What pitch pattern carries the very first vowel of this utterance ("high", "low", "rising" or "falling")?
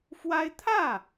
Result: high